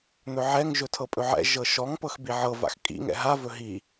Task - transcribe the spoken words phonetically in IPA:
n̪ ɵ ʕ ɛ ŋ ʒ ɵ tʰ ɤ pʼ ɵ ʕ ɛ̰ ʒ ɤ ʃ ɔ ŋ p ɤ x b i ʕ ɤ v a̰ x kʼ ḭ ŋ ɛ̰ ɦ a v ɵ ɦ i

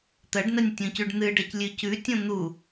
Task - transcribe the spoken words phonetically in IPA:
t̪ ɐ ɖ n ɐ nʲ tʲ õ c ʉ ɖ n̪ ɨ ɖ ɐ c lʲ ʉ c ʉ tʲ õ n̪ u

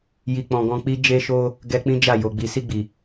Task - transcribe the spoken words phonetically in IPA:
j i˨ k͡p ɔ̃˨ ɡ ɔ̃˧ k͡p i˦ d͡ʒ e˧ ʃ o˧ | ɡ ɛ˧ k͡p ĩ˦ d͡ʒ a˦˨ j o˨ ɡ͡b i˨ s i˧ ɡ͡b i˨

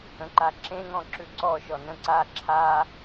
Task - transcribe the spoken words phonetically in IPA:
ə̃ ǃ a ǁ ẽ ŋ ɔ̃ ǁ ʉ ǀ ɔ ʃ ɔ n ə̃ ǀ a ǁʰ a

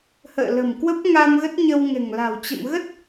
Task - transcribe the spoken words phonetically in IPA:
h ə̰ː˧˨ l ə̤˨˩ m k w ə˦˥ p̚ ŋ a˧ m ɣ ə˦˥ t̚ ɲ ə˧ w ŋ ɛ̤˨˩ ŋ l a̤˨˩ w t͡ɕ ə̰˧˨ m ɣ ə˦˥ t̚

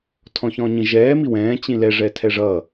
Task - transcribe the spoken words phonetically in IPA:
tʰ ɔ̃ ç ɔ̃ ɲ ĩ ʒ ɛː m i w ɛ̃ː t͡ɕ ĩ l ɛ ʐ ɛ tʰ ɛ ʐ ʌ

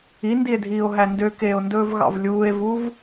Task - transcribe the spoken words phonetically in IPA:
i n d i e̯ dʱ iː o̯ ɦ æ n d ø k eː o̯ n d ɵː v ɣ ɑ̰ v lʲ uː e̯ v u v

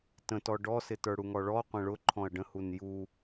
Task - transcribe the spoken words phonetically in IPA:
t ə̃ t ɔ ɖ ɔ s ɪ t ə˞ ɽ u ŋ ɔ ɭ ɔ qʷ ə̃ ɭ ʊ ǃʰ ɔ̃ ɐ̯ ɖ ə̃ h u n j u

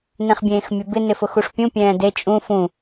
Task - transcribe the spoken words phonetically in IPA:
n ẽ χ bʲ ẽː x mʲ ʊ b ɪ n ɪ f ʊ x u ʂ pʲ ũ pʲ ɛ̃ː d e t͡ʃʼ ũ f ũ

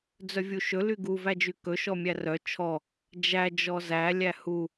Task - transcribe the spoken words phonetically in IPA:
d͡z œ vʲ u ʃ ɵ l y ɡ u v æ d͡ʒ y k ɵ ʃ ɔ mʲ æ r œ t͡ʃʰ ɔ | d͡ʒ æ d͡ʒ ɔ z æ lʲ æ h u

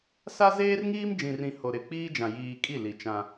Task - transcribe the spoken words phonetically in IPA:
s a˦ z eː˦ r ŋ iː˦ m d͡ʒ ĩ˨ r ĩ˨ h o˨ ɾ ɪ˨ k͡p iː˦ d͡ʒ ã˨ j iː˨ kʼ i˦˨ l i˨ t͡ʃ ã˦

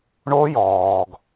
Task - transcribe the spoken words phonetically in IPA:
ɳ o˦˥ j ɔː˩ ɡ

